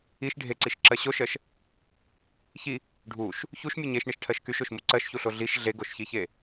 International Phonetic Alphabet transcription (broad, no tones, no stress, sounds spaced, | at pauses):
i ʃ ɖʱ e ǀ i ʃ ǁ ɜ ɕ o ʃ ɜ ʃ | ç i | ɖʱ u ʃ | ç u ʃ mʲ u ɲ e ʃ ɳ i ʃ ʈʰ ɜ ʃ k y ʃ o ʃ m u ǀ ɜ ʃ ç u ɬ o ɮ i ʃ ɮ e ɡ o ʃ ç i ç e